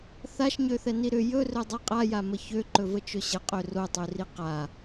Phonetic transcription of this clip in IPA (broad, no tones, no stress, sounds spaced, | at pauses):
θ a ʃ ɲ ø θ ɛ n i ɾ ʏ j ɵ r ɵ dˤ i qʼ a j a m ə ç ø ǃ ɵ v ə t͡ʃ ɵ ɕ ə qʼ ø r o tˤ ø r i q a